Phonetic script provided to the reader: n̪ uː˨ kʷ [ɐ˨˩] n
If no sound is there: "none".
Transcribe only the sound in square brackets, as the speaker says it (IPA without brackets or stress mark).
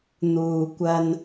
ɐ˧